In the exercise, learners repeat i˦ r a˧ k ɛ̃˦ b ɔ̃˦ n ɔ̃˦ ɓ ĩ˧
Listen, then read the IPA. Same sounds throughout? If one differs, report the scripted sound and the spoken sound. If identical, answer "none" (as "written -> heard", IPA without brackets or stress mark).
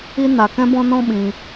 r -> n